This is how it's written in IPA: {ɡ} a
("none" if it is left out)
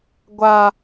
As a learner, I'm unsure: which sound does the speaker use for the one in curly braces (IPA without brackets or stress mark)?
ɡʷ